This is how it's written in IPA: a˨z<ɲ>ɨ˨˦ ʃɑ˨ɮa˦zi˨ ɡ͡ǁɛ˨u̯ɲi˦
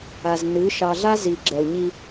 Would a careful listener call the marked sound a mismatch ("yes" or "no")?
yes